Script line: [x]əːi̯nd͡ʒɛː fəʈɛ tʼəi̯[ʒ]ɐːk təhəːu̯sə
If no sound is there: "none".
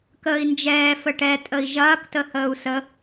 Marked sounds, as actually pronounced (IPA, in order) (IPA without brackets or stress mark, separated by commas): k, ʒ